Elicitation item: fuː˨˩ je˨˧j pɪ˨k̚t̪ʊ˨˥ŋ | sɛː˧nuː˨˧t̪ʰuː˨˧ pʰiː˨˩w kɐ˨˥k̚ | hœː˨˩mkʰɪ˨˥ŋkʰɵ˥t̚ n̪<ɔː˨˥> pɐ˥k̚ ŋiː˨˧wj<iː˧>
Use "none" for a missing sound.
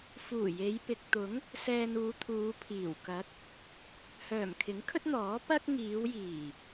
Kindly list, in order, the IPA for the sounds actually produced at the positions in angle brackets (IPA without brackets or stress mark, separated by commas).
ɔː˨˥, iː˨˩